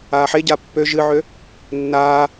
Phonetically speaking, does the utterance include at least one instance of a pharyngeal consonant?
yes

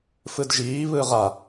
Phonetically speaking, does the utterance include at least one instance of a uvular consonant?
yes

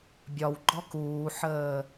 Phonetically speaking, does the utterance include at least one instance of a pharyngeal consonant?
yes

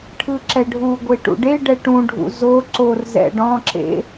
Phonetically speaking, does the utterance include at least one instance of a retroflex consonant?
yes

